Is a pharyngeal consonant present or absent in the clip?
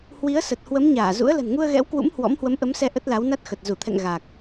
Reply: absent